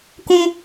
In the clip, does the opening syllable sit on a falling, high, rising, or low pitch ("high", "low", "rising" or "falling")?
high